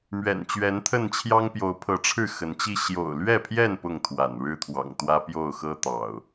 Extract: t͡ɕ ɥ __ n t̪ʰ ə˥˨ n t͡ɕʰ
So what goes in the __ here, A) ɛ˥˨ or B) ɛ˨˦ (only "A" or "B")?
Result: B